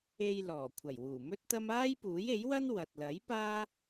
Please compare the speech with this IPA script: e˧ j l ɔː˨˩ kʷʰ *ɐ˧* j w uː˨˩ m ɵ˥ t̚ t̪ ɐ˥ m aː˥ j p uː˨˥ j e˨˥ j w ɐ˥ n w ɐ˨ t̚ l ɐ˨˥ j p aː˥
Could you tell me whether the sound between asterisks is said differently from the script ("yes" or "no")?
yes